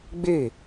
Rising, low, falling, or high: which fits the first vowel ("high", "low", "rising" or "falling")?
falling